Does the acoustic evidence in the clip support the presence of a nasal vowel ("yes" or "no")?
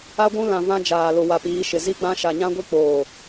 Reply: yes